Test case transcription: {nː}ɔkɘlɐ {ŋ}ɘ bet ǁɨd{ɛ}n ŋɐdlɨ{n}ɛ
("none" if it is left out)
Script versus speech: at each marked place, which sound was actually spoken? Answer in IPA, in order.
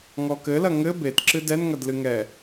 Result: ŋ, ŋ, ɛ, ŋ

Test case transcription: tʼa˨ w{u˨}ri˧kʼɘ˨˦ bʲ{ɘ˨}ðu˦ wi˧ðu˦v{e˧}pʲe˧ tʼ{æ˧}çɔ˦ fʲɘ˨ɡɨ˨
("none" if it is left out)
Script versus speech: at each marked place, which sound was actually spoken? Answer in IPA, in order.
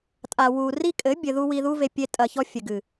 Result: u˨, ɘ˧, e˧, ɐ˧

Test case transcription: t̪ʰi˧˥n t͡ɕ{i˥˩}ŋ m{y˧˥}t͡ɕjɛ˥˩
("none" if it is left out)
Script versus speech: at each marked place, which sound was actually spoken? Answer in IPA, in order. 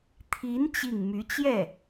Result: i˥˩, y˧˥

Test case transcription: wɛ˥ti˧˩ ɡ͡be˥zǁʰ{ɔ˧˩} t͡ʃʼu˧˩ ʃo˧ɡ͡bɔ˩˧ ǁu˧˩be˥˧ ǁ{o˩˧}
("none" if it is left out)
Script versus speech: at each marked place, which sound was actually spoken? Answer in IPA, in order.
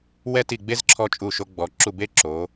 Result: ɔ˧, o˩˧

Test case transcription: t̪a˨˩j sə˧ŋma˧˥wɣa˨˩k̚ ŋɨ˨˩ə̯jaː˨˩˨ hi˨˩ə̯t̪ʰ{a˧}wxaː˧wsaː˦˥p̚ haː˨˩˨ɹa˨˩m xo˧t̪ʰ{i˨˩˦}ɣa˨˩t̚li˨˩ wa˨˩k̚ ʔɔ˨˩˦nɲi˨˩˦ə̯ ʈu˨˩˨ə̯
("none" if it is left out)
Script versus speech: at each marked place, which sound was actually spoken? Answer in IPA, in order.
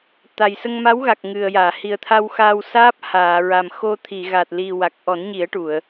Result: a˧, i˨˩˨

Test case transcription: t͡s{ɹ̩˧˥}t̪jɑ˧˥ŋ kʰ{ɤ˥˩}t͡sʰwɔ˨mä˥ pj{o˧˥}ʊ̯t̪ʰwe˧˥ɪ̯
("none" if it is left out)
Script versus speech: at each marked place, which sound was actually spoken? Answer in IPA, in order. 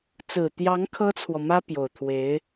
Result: ɹ̩˨˩, ɤ˥, o˨˩

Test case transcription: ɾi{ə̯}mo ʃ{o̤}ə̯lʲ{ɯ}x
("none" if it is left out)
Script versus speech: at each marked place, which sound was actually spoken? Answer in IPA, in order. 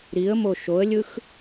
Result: ə̯, o, ɯ

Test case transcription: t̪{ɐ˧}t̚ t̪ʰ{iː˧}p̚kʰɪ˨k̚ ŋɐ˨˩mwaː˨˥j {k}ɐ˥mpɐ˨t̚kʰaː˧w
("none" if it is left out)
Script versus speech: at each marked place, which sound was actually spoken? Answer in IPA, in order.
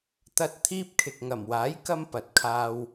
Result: ɐ˧, iː˥, k

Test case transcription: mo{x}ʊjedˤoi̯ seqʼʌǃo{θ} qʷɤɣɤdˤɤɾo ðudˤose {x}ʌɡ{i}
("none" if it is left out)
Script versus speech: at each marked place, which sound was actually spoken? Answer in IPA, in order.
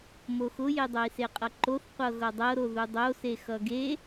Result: x, θ, x, e

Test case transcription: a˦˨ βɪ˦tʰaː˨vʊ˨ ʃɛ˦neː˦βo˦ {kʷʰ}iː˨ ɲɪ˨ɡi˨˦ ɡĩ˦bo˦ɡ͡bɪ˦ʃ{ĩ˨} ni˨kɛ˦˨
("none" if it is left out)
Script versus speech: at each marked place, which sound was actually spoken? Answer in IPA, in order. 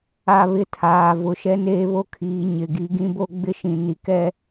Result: kʰ, ĩ˨

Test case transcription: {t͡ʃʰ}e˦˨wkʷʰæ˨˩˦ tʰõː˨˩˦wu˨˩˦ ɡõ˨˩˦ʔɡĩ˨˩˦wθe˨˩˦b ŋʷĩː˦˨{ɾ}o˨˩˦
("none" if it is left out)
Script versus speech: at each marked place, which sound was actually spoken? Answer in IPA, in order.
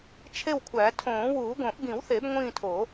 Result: t͡ʃʰ, tʰ

